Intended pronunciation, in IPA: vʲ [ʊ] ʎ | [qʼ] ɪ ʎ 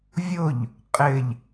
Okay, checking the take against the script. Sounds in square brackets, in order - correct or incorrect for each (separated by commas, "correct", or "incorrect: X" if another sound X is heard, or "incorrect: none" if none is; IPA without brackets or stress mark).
correct, correct